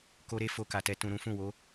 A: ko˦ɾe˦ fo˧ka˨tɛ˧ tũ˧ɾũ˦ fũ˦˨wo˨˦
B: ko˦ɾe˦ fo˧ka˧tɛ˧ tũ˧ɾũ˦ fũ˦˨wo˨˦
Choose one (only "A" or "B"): A